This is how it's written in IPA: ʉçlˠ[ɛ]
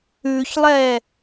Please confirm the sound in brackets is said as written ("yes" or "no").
yes